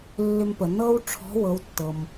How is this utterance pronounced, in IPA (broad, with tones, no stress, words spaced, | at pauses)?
lːʏ˧mpə˩ nɤ˥w ʈ͡ʂʰɔ̤˧˥ wɤ˩˧wtːɤ˩m